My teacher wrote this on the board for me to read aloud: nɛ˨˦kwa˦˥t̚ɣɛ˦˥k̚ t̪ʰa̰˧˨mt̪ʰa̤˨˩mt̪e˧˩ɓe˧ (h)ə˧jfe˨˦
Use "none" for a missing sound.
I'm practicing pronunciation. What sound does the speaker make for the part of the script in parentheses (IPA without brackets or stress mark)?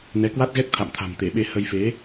h